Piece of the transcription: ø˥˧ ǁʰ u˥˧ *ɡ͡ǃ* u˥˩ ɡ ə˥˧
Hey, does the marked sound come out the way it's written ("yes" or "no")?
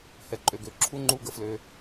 no